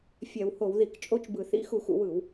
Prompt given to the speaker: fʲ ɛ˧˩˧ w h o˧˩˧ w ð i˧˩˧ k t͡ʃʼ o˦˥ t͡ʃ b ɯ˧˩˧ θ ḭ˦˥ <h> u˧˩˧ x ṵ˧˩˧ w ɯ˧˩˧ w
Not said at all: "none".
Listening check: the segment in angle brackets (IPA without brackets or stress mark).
x